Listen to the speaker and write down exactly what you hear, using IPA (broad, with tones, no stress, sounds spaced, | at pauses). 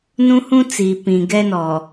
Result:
n ũ˦ h ũ˦ t͡s iː˨ p ĩ˨ ɡ ɛ˦ n ɔ˨